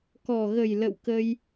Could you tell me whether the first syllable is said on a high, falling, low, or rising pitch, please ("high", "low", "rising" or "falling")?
low